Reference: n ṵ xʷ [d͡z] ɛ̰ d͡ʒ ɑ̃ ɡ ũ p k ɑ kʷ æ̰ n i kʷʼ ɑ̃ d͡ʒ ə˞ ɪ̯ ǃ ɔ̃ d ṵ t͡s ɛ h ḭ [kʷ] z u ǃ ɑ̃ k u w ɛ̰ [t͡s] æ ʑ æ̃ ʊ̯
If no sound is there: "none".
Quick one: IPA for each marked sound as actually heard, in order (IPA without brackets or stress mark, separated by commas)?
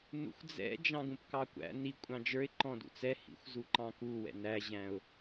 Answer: d͡z, xʷ, n